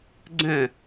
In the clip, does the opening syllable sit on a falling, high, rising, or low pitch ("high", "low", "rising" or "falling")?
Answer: falling